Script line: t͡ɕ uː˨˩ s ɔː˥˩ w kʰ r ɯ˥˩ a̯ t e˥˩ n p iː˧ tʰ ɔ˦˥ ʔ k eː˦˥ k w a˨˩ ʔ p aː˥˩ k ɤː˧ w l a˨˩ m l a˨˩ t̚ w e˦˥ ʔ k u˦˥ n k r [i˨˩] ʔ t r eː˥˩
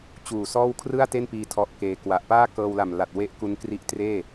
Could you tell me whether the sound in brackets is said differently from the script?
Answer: yes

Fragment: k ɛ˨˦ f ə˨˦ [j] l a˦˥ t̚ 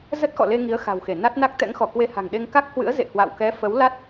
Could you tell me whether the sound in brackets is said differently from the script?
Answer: yes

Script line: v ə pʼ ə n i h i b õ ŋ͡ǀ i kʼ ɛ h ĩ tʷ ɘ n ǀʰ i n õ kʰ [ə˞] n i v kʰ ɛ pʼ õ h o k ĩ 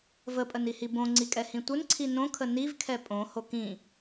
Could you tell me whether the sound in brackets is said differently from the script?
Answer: yes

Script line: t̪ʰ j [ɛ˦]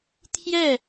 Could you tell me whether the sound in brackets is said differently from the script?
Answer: yes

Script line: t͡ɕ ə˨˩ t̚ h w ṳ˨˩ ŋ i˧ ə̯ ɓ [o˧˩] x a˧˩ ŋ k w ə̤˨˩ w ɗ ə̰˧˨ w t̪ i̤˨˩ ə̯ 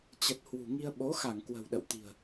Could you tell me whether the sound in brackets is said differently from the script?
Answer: yes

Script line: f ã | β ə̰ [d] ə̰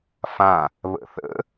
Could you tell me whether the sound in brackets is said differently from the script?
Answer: yes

